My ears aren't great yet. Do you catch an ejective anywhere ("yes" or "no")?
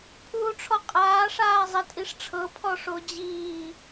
yes